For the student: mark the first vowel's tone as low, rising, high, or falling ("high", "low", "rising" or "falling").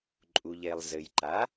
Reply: low